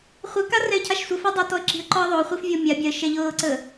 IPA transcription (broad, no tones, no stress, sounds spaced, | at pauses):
χʷ ə k a r ɛ ɪ̯ cʰ a ʃ sʷ ə f ɛ dˤ a t ɔ ə̯ ǁ i̤ ə̯ ǃ ɔ ə̯ ðˤ o χʷ i f vʲ ɔ mʲ a bʲ a ə̯ ʃ ɛ ʎ ɤː ǀ ə